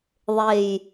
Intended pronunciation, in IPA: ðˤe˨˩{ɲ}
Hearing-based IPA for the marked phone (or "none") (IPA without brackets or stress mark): j